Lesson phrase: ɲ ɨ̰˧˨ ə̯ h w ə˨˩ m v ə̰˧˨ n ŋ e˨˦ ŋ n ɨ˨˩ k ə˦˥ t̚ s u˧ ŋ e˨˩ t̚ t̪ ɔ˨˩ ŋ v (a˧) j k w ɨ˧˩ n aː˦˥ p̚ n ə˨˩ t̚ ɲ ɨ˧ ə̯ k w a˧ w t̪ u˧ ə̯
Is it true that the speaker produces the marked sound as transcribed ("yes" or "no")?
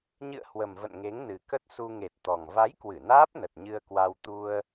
no